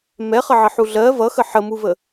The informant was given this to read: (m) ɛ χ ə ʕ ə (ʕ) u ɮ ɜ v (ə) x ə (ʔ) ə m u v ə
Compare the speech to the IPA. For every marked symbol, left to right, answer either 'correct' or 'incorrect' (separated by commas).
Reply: correct, incorrect, incorrect, incorrect